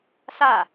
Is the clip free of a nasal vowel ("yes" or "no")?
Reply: yes